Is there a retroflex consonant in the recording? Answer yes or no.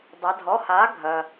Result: no